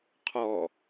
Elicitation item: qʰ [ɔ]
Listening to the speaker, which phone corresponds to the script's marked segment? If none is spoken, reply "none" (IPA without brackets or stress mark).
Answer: ɔ